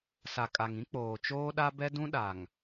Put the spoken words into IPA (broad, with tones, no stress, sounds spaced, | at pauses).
s a˨ kʼ a˨ ŋ ĩ˦ k͡p oː˨ t͡ʃ oː˦ ɗ a˦ b ɛ˦ d ũ˦ ɗ a˨ ŋ